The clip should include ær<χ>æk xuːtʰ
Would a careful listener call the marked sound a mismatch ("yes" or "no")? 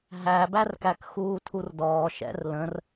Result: yes